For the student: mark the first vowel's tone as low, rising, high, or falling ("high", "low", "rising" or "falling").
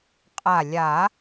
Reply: low